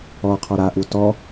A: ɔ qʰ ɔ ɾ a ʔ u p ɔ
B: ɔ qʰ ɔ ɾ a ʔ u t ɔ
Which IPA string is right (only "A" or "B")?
B